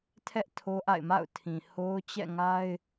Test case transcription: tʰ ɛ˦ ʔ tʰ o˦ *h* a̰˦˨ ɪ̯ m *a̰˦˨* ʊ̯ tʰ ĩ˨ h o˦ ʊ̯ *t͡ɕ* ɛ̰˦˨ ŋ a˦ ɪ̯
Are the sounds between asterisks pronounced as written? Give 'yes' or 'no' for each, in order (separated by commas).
no, yes, yes